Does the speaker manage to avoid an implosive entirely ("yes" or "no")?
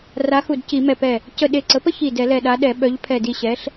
no